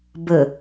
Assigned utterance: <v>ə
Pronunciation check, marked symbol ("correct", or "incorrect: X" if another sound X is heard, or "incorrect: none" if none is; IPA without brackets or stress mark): incorrect: b